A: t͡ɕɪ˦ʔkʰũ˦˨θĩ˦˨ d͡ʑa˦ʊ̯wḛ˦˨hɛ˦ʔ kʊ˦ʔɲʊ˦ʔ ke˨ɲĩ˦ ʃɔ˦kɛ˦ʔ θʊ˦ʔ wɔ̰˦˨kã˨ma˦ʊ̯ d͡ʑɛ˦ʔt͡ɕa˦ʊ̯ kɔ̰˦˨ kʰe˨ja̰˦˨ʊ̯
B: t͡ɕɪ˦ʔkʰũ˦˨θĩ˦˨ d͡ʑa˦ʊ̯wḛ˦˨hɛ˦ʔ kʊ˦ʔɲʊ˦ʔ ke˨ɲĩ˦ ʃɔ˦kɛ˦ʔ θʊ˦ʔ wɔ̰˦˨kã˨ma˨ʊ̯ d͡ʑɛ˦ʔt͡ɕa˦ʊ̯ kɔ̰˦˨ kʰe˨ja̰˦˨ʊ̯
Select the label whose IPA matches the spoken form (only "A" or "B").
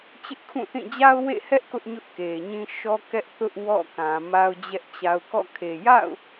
A